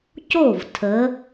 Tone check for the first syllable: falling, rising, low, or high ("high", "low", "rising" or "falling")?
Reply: falling